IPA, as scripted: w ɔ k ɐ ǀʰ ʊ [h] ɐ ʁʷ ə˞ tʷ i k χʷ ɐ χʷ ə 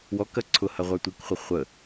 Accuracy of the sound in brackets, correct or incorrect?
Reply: correct